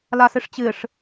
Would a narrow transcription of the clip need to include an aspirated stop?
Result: no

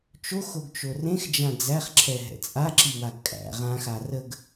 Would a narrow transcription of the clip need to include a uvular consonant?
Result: yes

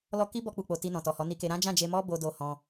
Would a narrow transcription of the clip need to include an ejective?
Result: no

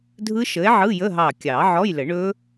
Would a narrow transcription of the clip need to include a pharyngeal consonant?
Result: yes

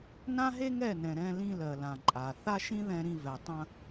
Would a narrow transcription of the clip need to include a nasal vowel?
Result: yes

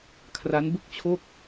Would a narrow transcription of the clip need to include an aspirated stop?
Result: yes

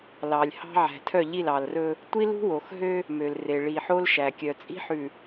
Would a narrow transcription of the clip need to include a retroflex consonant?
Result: yes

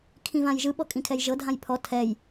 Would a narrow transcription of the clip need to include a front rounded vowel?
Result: no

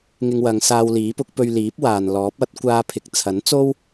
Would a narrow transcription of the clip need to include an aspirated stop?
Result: yes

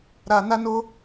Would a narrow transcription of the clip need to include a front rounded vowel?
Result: no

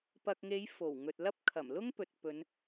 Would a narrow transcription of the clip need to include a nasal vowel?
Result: no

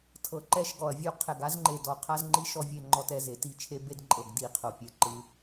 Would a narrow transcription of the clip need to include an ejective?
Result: yes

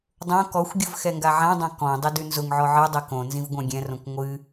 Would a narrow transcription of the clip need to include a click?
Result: no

